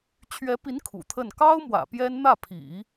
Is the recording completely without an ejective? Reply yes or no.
yes